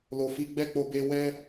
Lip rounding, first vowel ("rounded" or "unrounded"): rounded